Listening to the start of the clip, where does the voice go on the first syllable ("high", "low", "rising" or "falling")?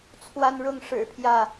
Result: high